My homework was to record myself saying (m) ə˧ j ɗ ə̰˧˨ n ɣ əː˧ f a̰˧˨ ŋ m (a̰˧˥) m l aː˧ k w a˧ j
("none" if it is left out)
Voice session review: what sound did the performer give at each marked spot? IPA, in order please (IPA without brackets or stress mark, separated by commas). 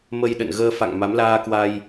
m, a˨˦